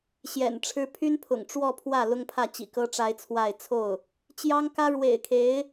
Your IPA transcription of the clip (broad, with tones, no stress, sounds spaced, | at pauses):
ɕ j ɛ̰˨˩ n ʈ͡ʂʰ ɻ̩˥ pʰ y˥ n pʰ ʊ̰˨˩ ŋ ʈ͡ʂ w ɔ˥˧ pʰ w ä˥˩ l ʊ˥ ŋ pʰ ä˥˩ t͡ɕ ḭ˨˩ k ɤ˥ ʈ͡ʂ a˥ ɪ̯ t͡sʰ w a˥˧ ɪ̯ t͡sʰ o˥˩ ʊ̯ | t͡ɕ j ɑ˥ ŋ k ä˥ ɻ w ḛ˨˩ ɪ̯ kʰ e˧˥ ɪ̯